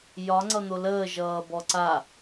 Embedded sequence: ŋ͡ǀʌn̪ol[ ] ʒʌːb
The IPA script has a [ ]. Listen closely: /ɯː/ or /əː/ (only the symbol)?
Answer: əː